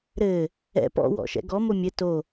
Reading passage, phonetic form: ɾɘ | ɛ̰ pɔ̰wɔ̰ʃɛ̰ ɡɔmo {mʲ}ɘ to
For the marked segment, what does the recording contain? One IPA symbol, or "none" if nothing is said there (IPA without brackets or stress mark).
mʲ